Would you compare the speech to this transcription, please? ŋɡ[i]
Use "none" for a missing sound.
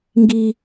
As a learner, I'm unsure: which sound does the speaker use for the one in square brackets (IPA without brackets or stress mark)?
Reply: i